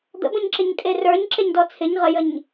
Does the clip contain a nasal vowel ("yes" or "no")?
yes